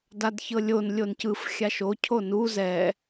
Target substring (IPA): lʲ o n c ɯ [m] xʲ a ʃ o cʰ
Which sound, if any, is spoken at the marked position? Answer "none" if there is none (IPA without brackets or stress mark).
f